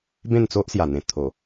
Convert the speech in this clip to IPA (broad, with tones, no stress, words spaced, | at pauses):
bẽ˥˧nt͡so˦ʔsja˨˩n̪ẽ˨˩ t̪ʰo˨˩